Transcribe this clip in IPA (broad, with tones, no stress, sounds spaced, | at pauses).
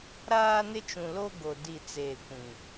ɾ aː˦ n ɪ˦ t͡ʃ ũ˨ l o˦ ɡ o˨ d i˦˨ t͡s eː˦˨ kʷ ĩ˨